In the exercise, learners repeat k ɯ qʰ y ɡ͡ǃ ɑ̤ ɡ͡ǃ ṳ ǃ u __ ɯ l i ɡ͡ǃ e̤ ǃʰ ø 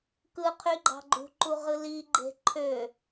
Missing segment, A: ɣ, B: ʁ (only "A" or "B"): B